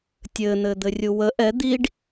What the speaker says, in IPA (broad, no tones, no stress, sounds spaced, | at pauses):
tʲ ɘ n̪ ɘ d̪ ɘ rʲ u w ə ʔ ɛ d̪ i ɖ